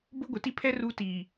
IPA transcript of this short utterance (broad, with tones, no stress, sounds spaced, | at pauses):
b ʊ˦ ɡʷ ɪ˨ t i˦ pʰ ɛ˦ r u˦ t i˨